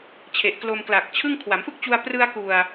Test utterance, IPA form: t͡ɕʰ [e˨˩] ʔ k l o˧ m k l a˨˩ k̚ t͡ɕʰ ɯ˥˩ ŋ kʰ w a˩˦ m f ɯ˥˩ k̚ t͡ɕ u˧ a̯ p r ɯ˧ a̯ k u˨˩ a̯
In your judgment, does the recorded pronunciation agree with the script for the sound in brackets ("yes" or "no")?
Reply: yes